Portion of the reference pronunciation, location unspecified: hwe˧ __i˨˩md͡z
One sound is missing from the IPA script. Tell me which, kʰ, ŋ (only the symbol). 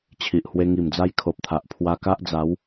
ŋ